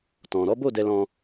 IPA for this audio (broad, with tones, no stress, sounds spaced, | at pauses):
t ɔ̃˨ ɾ ɔ˨˦ b o˦˨ d ɛ˧ l ɔ̃˧